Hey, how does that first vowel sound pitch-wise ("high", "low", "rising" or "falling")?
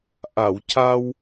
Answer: low